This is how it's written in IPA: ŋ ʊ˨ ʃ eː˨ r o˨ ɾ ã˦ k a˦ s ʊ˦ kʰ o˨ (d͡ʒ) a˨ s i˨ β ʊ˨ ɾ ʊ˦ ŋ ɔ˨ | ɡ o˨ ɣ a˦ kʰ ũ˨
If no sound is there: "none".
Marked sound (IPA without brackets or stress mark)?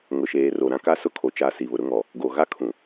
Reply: t͡ʃ